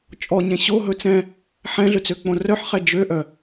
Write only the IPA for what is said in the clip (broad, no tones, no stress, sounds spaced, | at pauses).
t͡ʃʼ ɔ ɲ ɛ̃ ɕ o ɦ ɵ t͡s ɛ̃ | ħ ɛ̃ ɮ ø t͡s ø k͡p õ r œ ħ χ ɛ d͡ʒ ø ʔ œ